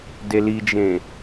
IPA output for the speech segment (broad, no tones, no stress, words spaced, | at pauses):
delid͡ʒẽ